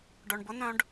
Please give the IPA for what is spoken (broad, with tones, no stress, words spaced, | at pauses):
ɖœ˩ɳbʊ˥nœ̃˦ɖ